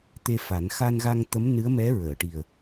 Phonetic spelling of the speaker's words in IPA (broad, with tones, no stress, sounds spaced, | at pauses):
t̪ e˧ f a˨˩˦ n x a˧ n ɣ a˧ ŋ t̪ ə˧˥ m n ɨ˧˥ ə̯ m ɛ˧˥ ɹ əː˨˩˨ ʈ i˨˩ ə̯